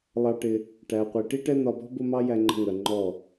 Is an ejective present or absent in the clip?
absent